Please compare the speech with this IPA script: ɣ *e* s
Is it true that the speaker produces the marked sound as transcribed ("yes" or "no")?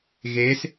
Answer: yes